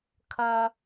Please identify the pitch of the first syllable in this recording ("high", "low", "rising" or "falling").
high